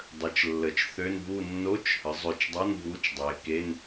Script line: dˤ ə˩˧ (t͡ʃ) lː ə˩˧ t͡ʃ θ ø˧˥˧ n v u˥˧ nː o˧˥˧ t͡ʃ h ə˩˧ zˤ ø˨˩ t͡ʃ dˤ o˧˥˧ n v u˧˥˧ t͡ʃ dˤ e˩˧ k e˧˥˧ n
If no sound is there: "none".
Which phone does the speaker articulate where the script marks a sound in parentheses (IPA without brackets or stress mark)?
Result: t͡ʃ